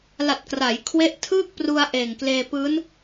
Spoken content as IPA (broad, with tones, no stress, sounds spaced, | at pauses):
l a˨˩ t̚ k r a˩˦ j kʰ w e˦˥ ʔ tʰ ɯː˥˩ k̚ p r u˧ a̯ ʔ eː˨˩ ŋ k l eː˧ p ɯː˦˥ n